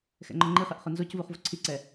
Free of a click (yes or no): no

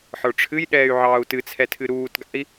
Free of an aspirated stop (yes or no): no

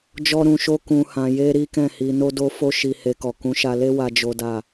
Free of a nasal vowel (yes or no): no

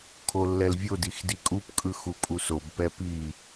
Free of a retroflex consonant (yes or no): yes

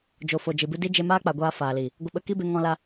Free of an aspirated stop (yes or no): yes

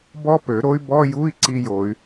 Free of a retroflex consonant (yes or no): yes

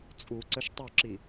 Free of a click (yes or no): no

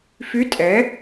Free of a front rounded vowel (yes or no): no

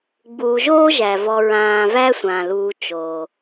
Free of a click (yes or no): yes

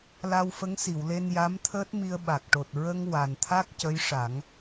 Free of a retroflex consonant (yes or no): no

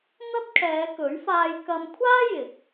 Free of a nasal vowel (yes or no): yes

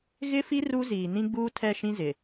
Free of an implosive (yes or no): yes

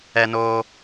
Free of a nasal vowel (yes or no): yes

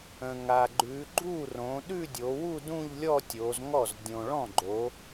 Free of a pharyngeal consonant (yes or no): yes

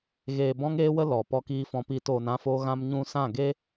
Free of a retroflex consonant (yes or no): yes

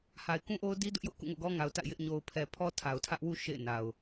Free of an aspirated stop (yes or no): no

